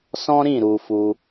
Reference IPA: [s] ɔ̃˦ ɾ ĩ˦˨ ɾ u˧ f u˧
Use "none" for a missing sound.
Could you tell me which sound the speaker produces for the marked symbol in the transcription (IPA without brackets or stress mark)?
s